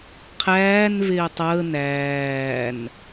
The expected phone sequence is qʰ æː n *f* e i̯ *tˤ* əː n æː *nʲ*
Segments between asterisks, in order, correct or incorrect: incorrect: v, correct, incorrect: n

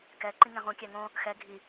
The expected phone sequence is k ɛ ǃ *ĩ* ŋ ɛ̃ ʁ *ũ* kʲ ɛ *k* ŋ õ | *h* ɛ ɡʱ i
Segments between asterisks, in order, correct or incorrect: correct, correct, incorrect: none, incorrect: x

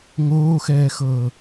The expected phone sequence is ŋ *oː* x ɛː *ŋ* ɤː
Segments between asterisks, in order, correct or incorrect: correct, incorrect: x

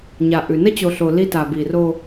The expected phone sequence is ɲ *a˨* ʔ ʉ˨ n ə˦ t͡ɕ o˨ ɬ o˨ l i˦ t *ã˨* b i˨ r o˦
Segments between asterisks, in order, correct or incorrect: correct, incorrect: a˨

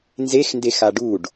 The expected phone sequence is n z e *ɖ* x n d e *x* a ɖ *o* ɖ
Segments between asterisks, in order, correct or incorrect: incorrect: none, correct, incorrect: u

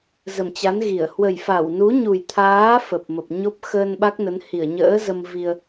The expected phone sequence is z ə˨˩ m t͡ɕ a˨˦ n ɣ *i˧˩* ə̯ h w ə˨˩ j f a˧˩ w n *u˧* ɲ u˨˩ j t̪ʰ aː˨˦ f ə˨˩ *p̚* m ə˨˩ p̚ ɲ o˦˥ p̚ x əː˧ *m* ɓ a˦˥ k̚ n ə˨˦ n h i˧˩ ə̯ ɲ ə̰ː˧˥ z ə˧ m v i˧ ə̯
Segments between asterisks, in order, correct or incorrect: correct, incorrect: u˨˦, correct, incorrect: n

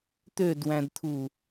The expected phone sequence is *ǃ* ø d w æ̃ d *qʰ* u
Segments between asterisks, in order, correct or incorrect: incorrect: t̪, incorrect: t̪ʰ

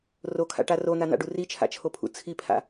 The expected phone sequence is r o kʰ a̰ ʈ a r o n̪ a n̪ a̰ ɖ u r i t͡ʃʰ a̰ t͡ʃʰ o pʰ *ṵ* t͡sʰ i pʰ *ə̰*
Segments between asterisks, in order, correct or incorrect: correct, incorrect: a̰

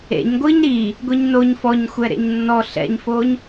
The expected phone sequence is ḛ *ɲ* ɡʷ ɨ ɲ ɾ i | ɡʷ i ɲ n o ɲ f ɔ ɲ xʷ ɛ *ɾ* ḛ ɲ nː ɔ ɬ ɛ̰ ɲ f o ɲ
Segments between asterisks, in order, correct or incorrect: correct, correct

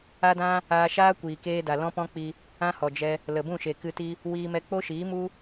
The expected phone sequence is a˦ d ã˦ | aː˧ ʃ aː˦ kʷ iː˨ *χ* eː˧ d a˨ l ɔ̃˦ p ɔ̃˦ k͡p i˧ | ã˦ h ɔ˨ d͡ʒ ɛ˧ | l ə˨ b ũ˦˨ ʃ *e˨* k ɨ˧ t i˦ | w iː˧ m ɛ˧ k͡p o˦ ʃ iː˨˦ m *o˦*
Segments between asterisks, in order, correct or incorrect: incorrect: k, correct, incorrect: u˦

